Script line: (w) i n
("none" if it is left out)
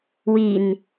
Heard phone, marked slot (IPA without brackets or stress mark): w